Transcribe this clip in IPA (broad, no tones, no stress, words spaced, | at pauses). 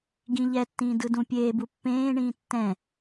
ɡĩʎɛtːĩː dɯdũpʲeːbu pːẽːɳĩː tːɛ̃